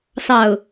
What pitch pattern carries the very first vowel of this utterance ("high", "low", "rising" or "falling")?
low